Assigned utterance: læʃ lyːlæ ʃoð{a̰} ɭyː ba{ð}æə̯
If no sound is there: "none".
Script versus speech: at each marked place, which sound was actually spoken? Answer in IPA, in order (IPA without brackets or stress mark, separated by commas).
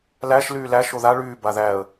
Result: a, ð